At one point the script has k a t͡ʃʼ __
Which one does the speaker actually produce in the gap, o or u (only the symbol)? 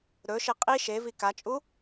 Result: u